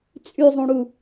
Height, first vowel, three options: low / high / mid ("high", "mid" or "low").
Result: high